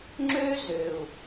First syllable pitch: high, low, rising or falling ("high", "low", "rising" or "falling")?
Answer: high